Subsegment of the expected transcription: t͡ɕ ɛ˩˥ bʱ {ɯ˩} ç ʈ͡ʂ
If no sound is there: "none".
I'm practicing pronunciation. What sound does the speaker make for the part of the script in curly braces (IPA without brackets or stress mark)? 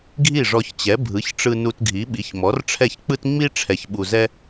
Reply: ɯ˩˥